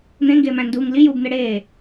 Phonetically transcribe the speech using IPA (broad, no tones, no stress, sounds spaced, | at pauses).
n̪ ẽ ŋ ɡ eː m æ̃ n d uː ŋ l i j uː b n̪ e ɽ eː